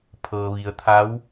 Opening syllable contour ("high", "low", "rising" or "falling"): low